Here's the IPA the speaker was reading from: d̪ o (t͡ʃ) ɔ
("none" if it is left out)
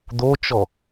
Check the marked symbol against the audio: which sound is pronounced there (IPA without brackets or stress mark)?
t͡ʃ